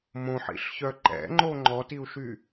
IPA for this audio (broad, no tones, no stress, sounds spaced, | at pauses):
m õ ħ ḭ ɬ ç œ ǃ ɛ̰ ŋ͡ǃ o ŋ͡ǃ ɔ t i u̯ ʃ y